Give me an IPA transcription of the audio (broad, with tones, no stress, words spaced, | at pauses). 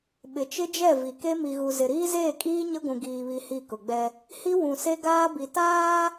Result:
ɓɪ˨t͡ʃɪ˦d͡ʒɛ˦˨ vi˨ke˦ mi˨ɣu˨ zɪ˨ɾiː˦zeː˦˨kʼiː˦ ɲɪ˦ɡʷũ˨ ɡiː˨βi˨ hi˦˨kʊ˨ɡ͡bɛ˦ | hi˦ wũ˨se˦ ɡaː˦bi˨taː˦